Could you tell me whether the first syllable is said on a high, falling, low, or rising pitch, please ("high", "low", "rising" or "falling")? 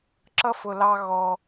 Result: high